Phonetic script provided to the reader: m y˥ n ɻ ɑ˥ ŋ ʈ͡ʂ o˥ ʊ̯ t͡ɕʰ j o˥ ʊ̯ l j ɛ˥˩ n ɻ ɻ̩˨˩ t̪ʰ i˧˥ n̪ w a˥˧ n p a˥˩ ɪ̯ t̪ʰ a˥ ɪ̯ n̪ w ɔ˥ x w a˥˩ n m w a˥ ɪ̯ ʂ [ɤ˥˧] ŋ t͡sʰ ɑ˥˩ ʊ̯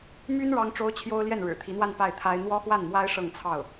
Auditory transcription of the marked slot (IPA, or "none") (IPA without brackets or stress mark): ɤ˥˧